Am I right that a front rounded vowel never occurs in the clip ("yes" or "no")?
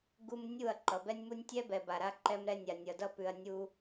yes